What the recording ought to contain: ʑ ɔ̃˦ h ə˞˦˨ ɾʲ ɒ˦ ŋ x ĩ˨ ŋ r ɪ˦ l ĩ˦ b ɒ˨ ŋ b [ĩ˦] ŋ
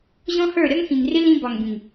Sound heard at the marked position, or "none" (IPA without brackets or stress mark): ĩ˨